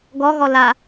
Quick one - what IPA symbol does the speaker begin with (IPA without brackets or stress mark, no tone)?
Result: ɡ